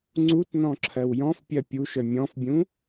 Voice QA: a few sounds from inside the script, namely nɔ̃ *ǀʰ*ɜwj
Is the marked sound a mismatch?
yes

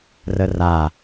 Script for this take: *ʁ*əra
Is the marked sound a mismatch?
yes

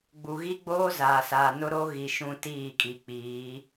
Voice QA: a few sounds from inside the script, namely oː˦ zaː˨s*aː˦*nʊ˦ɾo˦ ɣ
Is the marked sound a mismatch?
yes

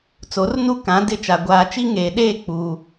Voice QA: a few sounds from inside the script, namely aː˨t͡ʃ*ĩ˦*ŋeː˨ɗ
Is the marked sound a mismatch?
yes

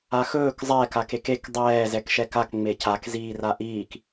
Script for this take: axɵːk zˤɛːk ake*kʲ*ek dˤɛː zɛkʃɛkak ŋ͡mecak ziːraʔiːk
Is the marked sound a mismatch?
yes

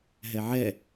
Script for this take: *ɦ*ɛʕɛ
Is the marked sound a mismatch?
no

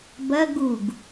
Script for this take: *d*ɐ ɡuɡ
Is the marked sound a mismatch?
yes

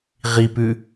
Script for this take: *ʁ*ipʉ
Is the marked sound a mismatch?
no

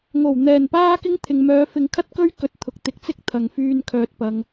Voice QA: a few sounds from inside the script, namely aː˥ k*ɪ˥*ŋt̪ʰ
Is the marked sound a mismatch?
no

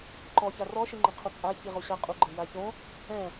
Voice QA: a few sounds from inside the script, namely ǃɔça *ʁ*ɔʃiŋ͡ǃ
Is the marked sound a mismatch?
yes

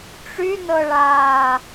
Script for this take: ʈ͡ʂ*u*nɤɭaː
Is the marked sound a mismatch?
yes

